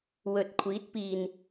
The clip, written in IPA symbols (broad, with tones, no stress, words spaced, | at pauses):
wɵ˨t̚kʷʰiː˨˥t̚piː˨n